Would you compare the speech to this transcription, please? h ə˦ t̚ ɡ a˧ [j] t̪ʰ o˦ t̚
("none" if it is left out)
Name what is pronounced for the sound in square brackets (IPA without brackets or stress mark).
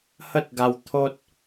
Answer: w